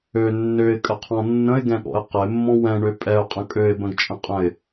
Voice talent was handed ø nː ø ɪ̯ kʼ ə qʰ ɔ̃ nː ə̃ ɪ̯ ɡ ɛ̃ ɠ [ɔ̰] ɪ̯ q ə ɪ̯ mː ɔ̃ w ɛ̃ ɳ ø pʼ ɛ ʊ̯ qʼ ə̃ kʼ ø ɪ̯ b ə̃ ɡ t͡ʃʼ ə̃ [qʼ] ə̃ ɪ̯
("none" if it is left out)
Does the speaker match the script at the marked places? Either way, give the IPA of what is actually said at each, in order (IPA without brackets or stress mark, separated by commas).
ɔ̰, qʼ